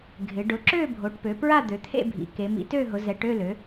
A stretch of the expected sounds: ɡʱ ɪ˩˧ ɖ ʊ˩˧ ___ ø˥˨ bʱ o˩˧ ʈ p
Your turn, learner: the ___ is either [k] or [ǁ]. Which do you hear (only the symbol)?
ǁ